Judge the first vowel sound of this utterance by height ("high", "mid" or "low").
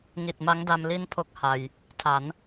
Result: high